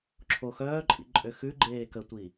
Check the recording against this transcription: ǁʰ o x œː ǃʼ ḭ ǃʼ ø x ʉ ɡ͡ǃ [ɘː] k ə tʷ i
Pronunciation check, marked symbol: incorrect: eː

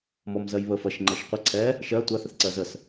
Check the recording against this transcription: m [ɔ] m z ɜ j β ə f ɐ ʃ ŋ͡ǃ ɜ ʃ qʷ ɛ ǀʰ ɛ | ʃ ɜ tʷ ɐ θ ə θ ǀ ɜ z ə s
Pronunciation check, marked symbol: correct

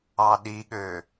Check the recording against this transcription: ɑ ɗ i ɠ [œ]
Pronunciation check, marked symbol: incorrect: ø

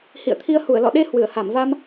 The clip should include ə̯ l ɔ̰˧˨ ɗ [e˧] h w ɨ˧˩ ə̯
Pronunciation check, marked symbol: correct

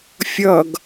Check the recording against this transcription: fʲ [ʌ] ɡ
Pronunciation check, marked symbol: correct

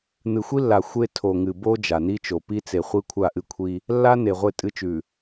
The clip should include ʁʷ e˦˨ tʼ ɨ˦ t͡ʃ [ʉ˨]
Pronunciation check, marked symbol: correct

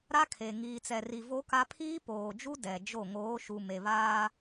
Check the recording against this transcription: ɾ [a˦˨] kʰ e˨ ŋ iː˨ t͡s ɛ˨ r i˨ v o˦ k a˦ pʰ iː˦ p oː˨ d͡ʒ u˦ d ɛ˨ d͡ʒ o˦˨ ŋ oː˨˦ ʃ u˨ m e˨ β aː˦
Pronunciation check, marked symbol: incorrect: a˦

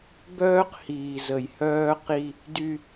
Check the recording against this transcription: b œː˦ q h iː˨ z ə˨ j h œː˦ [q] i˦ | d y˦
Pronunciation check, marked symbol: correct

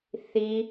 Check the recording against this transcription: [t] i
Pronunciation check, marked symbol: incorrect: θ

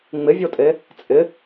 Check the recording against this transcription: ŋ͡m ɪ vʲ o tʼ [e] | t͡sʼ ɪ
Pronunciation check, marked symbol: correct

